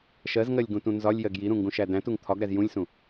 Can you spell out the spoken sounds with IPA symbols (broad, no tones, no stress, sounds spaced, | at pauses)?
ʃ ɜ z ŋ ɜ lʲ ɡ ũ t ũ n z ɒ lʲ j ɜ ɡ j i ɾ ũ ŋ ɡ ũ ʃ æ d æ̃ t u ŋ t̪ʰ ɒ ɡ ɾ æ z j ũ lʲ s ũ